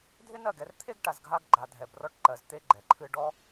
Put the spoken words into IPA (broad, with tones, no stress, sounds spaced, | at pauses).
dʱ ɪ˦ n ɜ˦˨ ɡ ɛ˧ r t̪ʰ e˦ ɡ ʈ a˧ z ɡʱ a˦ ɡ ɡ͡ǃ a˧ dʱ ɛ˧ b r ɔ˦ ʈ ǃ ɜ˧ z t̪ e˦ ɡ͡ǃ ɛ˨ ǃʰ ɨ˦ ɖ ɔ˦